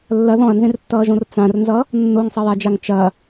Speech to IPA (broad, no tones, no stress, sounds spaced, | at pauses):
lː ɐ ð ɔ̃ ɐ̯ n z ẽ r tː ʌː ʒ õ r t͡s ã r n z ʌ | nː o ŋ sˤ ɐ j a d͡ʒ a ŋ t͡ʃ ɐ